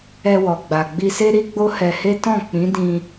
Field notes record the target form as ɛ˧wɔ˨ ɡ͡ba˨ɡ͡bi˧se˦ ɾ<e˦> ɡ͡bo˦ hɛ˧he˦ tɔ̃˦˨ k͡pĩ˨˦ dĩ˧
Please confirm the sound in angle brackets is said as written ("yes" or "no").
no